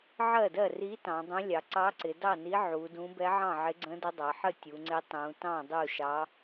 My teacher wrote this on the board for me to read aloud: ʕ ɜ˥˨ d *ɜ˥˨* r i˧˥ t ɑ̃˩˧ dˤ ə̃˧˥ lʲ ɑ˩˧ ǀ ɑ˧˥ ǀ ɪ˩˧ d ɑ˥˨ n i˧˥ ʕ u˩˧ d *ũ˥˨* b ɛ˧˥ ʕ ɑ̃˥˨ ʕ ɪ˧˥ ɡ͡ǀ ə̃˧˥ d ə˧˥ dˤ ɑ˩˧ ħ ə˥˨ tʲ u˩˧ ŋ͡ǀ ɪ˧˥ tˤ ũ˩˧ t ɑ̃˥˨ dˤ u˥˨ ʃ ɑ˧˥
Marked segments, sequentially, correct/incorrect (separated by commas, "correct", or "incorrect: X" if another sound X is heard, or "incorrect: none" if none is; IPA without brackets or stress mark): correct, incorrect: ũ˧˥